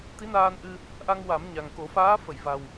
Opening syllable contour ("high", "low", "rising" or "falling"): rising